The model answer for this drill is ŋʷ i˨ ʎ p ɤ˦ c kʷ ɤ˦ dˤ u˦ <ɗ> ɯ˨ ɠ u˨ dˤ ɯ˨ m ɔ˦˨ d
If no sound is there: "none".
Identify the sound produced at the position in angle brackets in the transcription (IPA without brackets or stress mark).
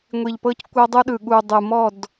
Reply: ɗ